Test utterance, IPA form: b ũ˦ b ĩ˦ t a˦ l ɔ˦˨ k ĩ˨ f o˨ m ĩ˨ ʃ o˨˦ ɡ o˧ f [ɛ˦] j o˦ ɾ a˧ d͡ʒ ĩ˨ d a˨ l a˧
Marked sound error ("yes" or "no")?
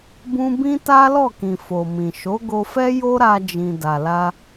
no